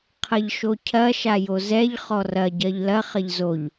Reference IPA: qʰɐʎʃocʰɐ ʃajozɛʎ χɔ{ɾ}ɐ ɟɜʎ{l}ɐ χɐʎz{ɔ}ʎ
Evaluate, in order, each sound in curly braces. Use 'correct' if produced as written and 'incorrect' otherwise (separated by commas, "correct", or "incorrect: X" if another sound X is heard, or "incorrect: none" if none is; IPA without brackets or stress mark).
incorrect: r, correct, incorrect: o